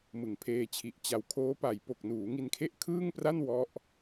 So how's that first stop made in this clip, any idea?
aspirated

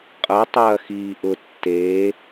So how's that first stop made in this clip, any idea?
ejective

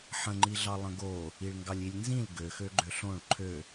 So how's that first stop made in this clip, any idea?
click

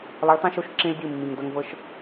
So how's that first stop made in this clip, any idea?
plain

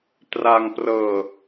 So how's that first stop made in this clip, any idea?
plain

